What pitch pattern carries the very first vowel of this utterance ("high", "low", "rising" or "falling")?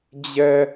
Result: high